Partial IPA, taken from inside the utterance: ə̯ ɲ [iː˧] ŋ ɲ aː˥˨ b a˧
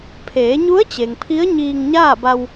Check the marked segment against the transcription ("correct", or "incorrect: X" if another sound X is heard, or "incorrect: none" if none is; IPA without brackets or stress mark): correct